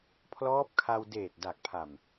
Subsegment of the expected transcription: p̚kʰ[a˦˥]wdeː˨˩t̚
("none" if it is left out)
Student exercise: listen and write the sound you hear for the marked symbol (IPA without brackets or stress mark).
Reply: a˧